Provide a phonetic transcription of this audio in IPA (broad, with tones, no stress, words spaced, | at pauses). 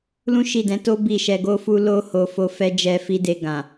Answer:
lũ˦ʃi˦˨dɛ̃˨˦to˦ bi˦˨ʃɛ˧ɡo˦fu˦ lo˦ ho˧fo˧ fɛ˦ d͡ʒɛ˧fi˧de˧ ɡã˨